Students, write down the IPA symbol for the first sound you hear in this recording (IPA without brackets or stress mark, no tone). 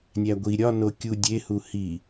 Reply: nʲ